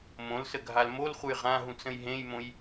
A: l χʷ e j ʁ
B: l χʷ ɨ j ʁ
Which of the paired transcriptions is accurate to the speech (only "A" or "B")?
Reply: B